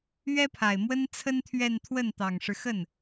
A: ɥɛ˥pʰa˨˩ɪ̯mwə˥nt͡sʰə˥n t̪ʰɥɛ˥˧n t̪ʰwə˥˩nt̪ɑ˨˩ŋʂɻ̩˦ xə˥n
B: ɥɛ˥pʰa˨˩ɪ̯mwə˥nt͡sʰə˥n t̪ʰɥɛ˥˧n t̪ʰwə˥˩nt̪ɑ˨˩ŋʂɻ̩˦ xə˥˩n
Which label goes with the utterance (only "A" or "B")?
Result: B